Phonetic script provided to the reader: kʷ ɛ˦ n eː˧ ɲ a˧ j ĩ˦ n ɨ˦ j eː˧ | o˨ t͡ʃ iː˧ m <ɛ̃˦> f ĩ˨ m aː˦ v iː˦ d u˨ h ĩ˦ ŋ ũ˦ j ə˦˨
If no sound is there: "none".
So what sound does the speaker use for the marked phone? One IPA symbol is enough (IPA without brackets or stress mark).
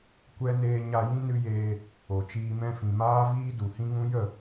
ɛ̃˧